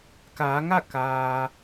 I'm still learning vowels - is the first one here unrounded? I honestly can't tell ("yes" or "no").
yes